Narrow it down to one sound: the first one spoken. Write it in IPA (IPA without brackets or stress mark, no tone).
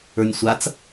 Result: ə˞